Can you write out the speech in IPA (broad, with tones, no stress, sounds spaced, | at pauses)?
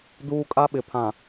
d uː˦ kʼ a˦ ɓ ɪ˨ pʰ ã˨